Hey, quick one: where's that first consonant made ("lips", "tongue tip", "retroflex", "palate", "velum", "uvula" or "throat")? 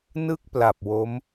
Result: tongue tip